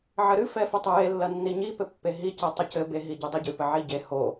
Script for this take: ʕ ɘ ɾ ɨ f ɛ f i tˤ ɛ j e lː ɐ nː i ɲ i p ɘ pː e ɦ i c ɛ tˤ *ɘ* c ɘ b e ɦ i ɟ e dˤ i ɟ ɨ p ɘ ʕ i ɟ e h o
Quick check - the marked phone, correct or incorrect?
correct